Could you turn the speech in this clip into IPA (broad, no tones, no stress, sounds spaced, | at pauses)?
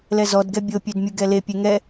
l ɛ z ɔ d ɡ ɛ bʲ o pʲ ø d mʲ u ɡ ɛ l e pʲ e ŋ ɛ